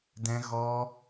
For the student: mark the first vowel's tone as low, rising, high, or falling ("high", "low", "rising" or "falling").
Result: high